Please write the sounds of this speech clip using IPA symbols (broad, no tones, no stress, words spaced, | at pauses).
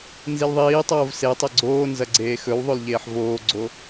nzilðˤiːtˤoːv setˤe ɡ͡ǀoːnzɐ ɡ͡ǀeːxɵwðˤol ʎeːħvoːɡ͡ǀo